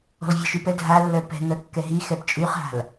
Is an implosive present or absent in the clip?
absent